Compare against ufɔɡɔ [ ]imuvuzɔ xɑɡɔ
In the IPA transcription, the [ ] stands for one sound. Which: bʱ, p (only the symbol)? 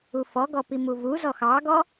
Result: p